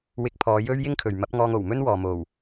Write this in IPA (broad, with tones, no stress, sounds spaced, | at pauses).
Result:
w ɪ˧ k̚ pʰ ɔː˨˧ j ɵ˥ ɥ j ɪ˥ ŋ kʰ ɵ˨ ɥ m ɐ˨˥ p̚ ŋ ɔː˧ ŋ o˨˩ w m ɵ˥ n w ɔː˨ m o˨˩ w